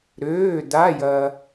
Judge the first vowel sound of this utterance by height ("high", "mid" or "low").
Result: mid